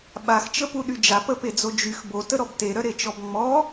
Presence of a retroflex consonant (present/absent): absent